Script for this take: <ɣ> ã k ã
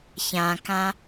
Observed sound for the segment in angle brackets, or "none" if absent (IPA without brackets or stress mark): ç